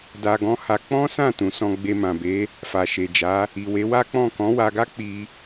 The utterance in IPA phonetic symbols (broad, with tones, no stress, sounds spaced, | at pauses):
d a˧ ɡ ɔ̃˦ h a˧ k͡p ɔ̃˦ s ã˦˨ t ũ˨ s ɔ̃˧ ɡ͡b e˧ m ã˨ b e˨˦ | f a˨ ʃ e˨ d͡ʒ a˨˦ | i˨ w e˨˦ w a˦ k͡p ɔ̃˦˨ k ɔ̃˨˦ w a˧ ɡ a˦ k͡p i˧